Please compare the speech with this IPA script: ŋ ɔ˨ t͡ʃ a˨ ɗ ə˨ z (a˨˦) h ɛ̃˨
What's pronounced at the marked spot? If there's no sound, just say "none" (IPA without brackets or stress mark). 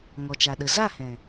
a˦˨